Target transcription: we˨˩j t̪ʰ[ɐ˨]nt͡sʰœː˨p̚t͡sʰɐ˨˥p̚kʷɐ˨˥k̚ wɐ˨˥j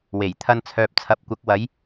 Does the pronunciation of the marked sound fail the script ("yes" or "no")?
yes